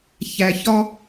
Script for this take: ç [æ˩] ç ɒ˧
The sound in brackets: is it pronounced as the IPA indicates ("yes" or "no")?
yes